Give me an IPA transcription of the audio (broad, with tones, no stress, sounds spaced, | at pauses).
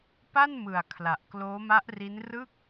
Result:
p a˥˩ n m ɯ˨˩ a̯ kʰ l a˨˩ ʔ k l oː˦˥ m a˦˥ ʔ r i˦˥ n r ɯ˥˩ k̚